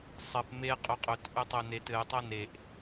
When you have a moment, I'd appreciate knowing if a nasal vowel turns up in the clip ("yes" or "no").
no